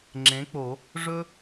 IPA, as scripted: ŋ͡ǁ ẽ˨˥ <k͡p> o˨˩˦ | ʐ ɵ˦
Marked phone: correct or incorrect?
correct